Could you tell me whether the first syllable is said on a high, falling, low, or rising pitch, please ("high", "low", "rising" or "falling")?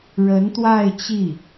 rising